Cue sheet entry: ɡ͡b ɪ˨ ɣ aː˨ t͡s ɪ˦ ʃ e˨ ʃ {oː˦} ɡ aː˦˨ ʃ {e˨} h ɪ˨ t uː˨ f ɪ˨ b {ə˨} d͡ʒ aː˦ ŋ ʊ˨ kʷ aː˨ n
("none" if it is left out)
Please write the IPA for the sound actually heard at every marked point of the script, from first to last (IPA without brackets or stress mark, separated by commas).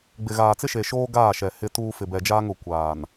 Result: oː˦, ɛ˨, ɛ˨